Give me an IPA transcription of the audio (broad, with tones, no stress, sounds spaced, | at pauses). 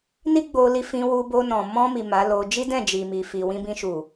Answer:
n i˦ ɡ͡b o˧ l i˧ f ĩ˧ w u˧ b o˧ n ɔ̃˨ m ɔ̃˧ m i˨ m a˨˦ l o˧ d͡ʒ i˦ d ɛ̃˦˨ d͡ʒ i˨ m i˨ f i˨ w ĩ˧ b ĩ˧ ʃ u˨